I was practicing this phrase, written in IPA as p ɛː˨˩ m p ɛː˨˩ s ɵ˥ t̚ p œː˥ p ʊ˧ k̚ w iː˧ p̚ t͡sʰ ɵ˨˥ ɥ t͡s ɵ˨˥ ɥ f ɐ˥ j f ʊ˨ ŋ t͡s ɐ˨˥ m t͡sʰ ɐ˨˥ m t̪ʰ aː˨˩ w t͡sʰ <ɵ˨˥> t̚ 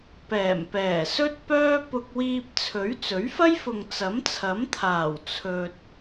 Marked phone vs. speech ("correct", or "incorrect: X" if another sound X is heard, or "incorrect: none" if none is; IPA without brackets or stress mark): incorrect: ɵ˨